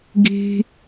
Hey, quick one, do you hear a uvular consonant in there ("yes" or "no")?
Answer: no